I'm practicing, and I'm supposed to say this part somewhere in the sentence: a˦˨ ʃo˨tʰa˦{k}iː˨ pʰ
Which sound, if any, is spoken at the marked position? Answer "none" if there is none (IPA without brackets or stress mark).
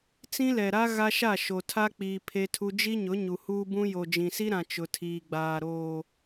k͡p